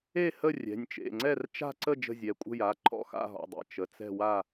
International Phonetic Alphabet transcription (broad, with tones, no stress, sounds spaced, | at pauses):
e˥˨ h ə˥˨ rʲ ɛ̤˩˧˩ nʲ t͡ʃ ḛ˩˧˩ ŋ͡ǀ ɛ˥˨ r t͡ʃ a̤˥˨ ǀ ə˥˨ d͡ʒ ə̤˥˨ zʲ ɛ˩˧˩ kʷʼ ə̤˥˨ j a˩˧˩ ǃʰ ɔ̰˥˨ x a̰˥˨ ɦ ɔ̰˩˧˩ dˤ ḛ˩˧˩ t͡ʃ ə˩˧˩ t͡s ɛ̤˥˨ w a˥˨